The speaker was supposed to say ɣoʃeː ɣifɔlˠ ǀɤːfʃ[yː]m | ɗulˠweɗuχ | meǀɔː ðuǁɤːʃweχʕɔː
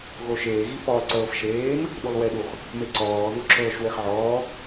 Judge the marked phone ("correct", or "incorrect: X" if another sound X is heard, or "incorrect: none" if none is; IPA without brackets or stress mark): incorrect: eː